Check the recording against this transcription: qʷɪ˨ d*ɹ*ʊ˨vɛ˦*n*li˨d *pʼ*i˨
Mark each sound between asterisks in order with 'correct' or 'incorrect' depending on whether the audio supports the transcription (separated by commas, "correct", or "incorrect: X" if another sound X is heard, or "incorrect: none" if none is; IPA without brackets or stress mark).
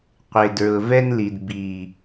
correct, correct, incorrect: b